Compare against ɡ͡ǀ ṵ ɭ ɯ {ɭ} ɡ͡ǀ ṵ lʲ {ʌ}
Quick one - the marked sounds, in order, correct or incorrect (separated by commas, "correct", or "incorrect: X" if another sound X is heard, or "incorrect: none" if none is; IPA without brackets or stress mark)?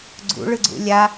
incorrect: none, incorrect: a